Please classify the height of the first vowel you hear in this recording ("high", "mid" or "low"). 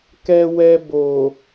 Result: mid